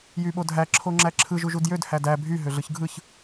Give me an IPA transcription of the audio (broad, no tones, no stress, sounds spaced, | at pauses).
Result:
j y ɓ o dʱ æ ǁʰ o ŋ͡ǁ æ ǁʰ ɯ ʒ u ʒ u d j ø d h æ d æ bʱ y ɦ ø ɮ ɯ ç ɡʱ ɯ ç